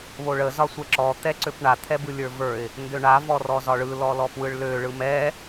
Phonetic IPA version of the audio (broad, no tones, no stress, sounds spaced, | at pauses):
β o ɭ ə z ɒ sʷ ɛ ǁ ɔ t̪ ɛ ǀ ø p ɳ a t̪ʰ ɛ b ɯ lʲ ə˞ v ə˞ ɪ̯ | n d ø ɳ a v ɔ r ɔ z ɒ ɭ ɯ l ɔ l ɔ p w ɯ ɭ l ø ɭ ɯ m ɛ